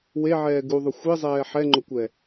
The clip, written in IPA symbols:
w e ʕ ɛː ɡ u ðˤ ʊ xʷ i zˤ ɛː ħ ɛ ŋ͡ǃ ʊ kʷ ɛ

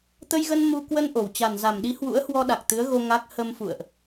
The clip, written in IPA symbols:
t̪ ə˧ j ɣ ə˧ n m u˧ k w ə˧ n ʔ o˨˩ w t͡ɕ a˨˩ n z a˨˩ m ɗ i˨˦ h w ṵ˧˥ ə̯ h w ɔ˧ ɗ a˨˩ k̚ t̪ ɨ˨˦ ə̯ ɣ o˧ ŋ a˦˥ k̚ h ə˧ m f ṵ˧˨ ə̯ ʔ

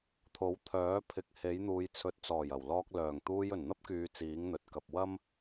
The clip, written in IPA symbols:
t̪ʰ o˨˥ w t̪ʰ œː˨˥ pʰ ɪ˨˥ k̚ h e˨˥ j n̪ uː˨˧ j t͡sʰ ɵ˨˥ t̚ t͡s ɔː˨˩ j ɐ˨˩ w l ɔː˧ k̚ l œː˨˩ ŋ t̪ uː˧ j ɵ˨˩ n n̪ ɐ˥ p̚ k yː˨˧ t͡s iː˨˥ ŋ n̪ ɵ˨ t̚ k ɐ˨ p̚ w ɐ˥ m

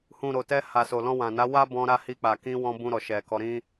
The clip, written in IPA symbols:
h ũ˨ ɾ o˨ t ɛ˧ h a˨ s o˨ l ɔ̃˧ w ã˨ n a˨˦ w a˦ b ɔ̃˧ ɾ a˧ h i˧ k͡p a˨ k ĩ˧ w ɔ̃˧ b ũ˧ ɾ ɔ˨ ʃ ɛ˨ k ɔ˧ ɾ ĩ˦

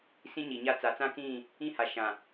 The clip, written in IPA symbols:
s ĩ˦ ɲ i˨ ɲ a˦ t͡s a˨˦ t͡s ã˦ k ĩ˦˨ | ĩ˦ h a˨ ʃ ã˨

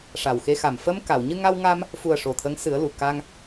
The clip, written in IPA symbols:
ʂ a˨˩ w x e˧ x a˨˩ m f ə˧ m k a˨˩˨ w ɲ ɨ˧ ŋ a˧ w ŋ a˧ m | f u˨˩ ə̯ ʂ o˨˩ t̪ʰ ə˧˥ ŋ s ɨ˨˩˦ ə̯ l u˨˩ k a˧ ŋ

